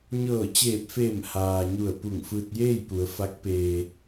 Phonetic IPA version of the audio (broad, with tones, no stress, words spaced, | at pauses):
ɲɤː˧˩t͡ɕeː˧˩p̚feː˧˩m haː˩ ɲu˧˩ə̯pu˧˩ŋ fɯː˧t̚jeː˥˨jpu˩˧ə̯ fa˧˥k̚ peː˧